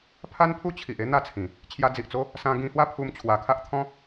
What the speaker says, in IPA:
pʰ a˦ n pʰ u˦ t͡ɕʰ i˨ ʔ e˦ n̪ a˥˧ t͡sʰ ĩ˨˩ | t͡ɕʰ j a˧ d͡z i˨ ʔ t͡s o˦ | s ã˧ ɡ ĩ˧ h w a˦ pʰ u˧ m t͡ɕʰ w a˨˩ kʰ a˦ ʔ t̪ʰ ɔ̃˦

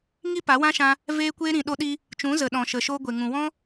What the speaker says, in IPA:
ŋ i˦ p a˨˦ w ã˦ ʃ ã˧ | v eː˦ kʷ eː˦ ɾ ĩ˨ ɗ o˧ ɗ i˧ | t͡ʃ ũ˨˦ z ə˨ ɗ ɔ̃˨ ʃ ə˨ ʃ oː˧ ɡʷ e˨ ŋ ũ˨ w ɔ̃˦

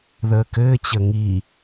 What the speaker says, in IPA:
ð əː k ɘː t͡ɕ ə ŋ i

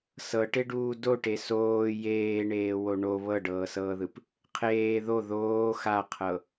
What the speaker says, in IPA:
s ɤ ʈ e ɖ uː d o ʈ e s oː j eː ɳ eː w o ɳ o β ɤ ɖ ɤː s ɤː ð ɯ p | qʰ eː ð o ð oː x a qʰ ɤ

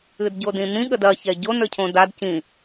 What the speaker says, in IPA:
ɨ d ɟ o d ĩ n̪ ĩ ɠ ə d ɐ ç ɛ ɟ o n ə˞ cʰ õ d a d c ĩ

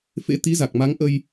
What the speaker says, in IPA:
f ḛ˧˥ t̪ i˨˦ z a˨˩ k̚ m a˨˦ ŋ ʔ ə˧ j

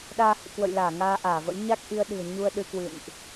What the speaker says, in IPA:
ɗ aː˧ h ɨ̰˧˨ k w ə̰˧˨ j l aː˧˩ ŋ aː˧ ʔ aː˧˩ v ə̰˧˥ j ɲ a˦˥ k̚ ʔ i˧ ə̯ ɗ ɨ̤˨˩ ə̯ ɲ u˧ ə̯ ɗ ɨ˧ k w ɨ̰˧˨ n ʔ

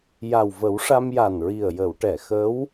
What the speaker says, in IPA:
j a˨˩ w v ə˨˩˦ w ʂ a˧ m j a˨˩ n ɹ i˨˩ ə̯ j ə˨˩˨ w ʈ ɛ˨˩˨ x ə˧˥ w

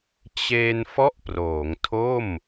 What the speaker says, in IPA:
t͡ɕ e˧ n f ɔ˥˩ ʔ p r oː˩˦ ŋ tʰ o˥˩ m

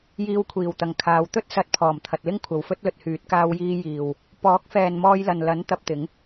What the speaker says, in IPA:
j iː˧ w kʷʰ iː˨˩ w t̪ ɐ˨˩ ŋ kʰ aː˨˧ w t̪ ɵ˥ t̚ s ɐ˨˥ t̚ pʰ ɔː˨˩ m t̪ʰ ɐ˨ t̚ l ɪ˥ ŋ kʷʰ ɐ˨ w f ɵ˥ t̚ l ɵ˨ t̚ h yː˨˥ t̚ k aː˥ w j iː˥ j iː˨ w | p ɔː˨˥ k̚ f ɛː˨ n m ɔː˧ j l ɐ˨ n l ɐ˨˥ n t̪ ɐ˧ p̚ t̪ ɪ˨˥ ŋ

